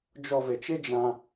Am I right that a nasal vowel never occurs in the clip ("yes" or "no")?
no